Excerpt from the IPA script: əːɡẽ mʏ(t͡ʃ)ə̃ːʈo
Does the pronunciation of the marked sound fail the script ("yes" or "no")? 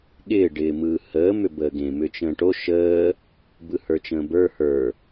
no